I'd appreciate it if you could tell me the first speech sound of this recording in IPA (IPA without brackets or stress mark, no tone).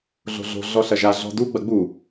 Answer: ɮ